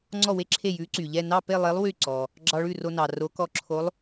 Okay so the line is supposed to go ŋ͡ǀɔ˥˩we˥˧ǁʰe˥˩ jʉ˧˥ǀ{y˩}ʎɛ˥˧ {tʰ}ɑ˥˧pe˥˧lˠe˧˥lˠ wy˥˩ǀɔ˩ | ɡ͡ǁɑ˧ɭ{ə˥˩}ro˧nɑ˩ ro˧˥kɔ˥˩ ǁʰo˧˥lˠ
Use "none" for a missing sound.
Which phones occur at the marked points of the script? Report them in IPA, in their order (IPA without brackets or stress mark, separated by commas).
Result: y˩, n, ʉ˥˩